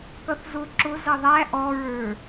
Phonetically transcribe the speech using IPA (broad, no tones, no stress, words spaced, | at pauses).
kʌθzʊ ǁʊ zʌðˤæ ʔɔɹə˞